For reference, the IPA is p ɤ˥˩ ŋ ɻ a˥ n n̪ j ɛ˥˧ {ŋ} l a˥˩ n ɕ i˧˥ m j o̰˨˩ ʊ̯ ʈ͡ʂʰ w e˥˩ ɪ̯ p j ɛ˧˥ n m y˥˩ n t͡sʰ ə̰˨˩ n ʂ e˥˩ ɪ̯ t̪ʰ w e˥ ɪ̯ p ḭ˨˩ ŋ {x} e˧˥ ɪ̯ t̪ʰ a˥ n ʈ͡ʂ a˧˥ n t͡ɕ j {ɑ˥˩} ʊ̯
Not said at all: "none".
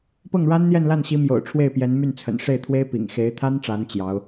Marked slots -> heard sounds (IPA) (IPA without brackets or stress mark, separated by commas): n, x, ɑ˧˥